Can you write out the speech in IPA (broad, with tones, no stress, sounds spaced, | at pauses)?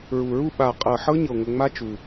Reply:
ɹ u˨˩ ɹ u˥˧ ɓ a˨˩ qʼ ɤ˨˩ ħ ɤ˦˥ ɲ ɤ˨˩ ŋʷ ə˨˩ ŋ͡m a˦˥ t͡ʃ u˨˩